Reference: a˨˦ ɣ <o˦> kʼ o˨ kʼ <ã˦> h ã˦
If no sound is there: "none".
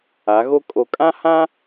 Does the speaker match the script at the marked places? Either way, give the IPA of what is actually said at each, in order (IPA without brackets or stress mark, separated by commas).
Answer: o˦, ã˦